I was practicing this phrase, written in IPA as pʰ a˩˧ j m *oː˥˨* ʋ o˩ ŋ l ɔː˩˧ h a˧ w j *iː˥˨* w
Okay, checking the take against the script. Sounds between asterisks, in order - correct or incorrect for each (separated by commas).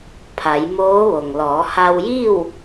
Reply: incorrect, correct